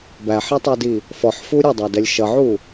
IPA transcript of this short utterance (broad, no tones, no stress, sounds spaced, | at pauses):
b æ ħ ɛ tˤ ɜ d i | f ɔ ħ f u ɾʲ ʌ dˤ æ d ɛ lʲ ʃ ʌ ʕ u